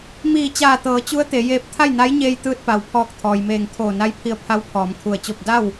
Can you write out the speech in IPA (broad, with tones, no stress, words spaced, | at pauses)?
miː˧˩t͡ɕaː˧˩t̪ɤː˩˧ t͡ɕu˧˥ə̯ t̪e˩˧ jeː˧p̚ t̪ʰa˥˨jna˧˥jɲeː˧j t̪ɯː˧t̚pa˩wpʰɔː˧˩k̚ t̪ʰɔː˩jmeː˧˩ŋ t̪ʰoː˧˩na˧˥jpʰi˧ə̯pʰa˧˥w pʰɔː˩˧mkʰu˧˩ə̯t͡ɕo˥˨p̚ da˥˨w